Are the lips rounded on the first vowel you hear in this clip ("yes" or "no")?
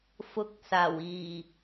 yes